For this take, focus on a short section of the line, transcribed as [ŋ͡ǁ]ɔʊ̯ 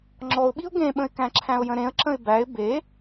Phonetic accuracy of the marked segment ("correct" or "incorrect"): correct